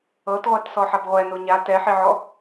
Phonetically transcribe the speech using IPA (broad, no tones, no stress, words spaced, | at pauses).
ɤtʁʷat sɔħabʁʷɛ noɲa tɛħiʕɔ